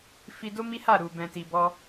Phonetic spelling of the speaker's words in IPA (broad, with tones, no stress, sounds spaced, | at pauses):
f i˧ d o˦ m i˦ h a˦˨ ɾ u˨ b ɛ̃˨ t i˨ b ɔ˧